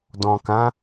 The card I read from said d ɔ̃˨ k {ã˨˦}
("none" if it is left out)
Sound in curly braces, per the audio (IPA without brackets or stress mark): ã˨˦